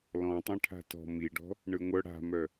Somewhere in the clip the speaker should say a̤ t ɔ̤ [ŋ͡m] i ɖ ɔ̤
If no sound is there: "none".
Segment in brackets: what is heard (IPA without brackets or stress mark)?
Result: m